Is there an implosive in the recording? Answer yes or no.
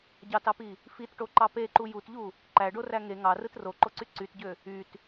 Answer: no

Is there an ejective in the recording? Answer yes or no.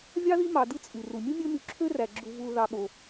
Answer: yes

